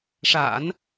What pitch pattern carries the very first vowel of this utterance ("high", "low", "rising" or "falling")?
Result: low